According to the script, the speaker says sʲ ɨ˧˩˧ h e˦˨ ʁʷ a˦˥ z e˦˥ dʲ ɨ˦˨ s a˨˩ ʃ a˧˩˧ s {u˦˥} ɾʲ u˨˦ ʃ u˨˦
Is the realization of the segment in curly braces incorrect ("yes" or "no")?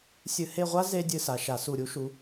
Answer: yes